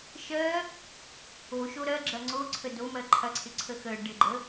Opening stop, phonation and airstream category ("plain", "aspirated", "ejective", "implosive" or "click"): click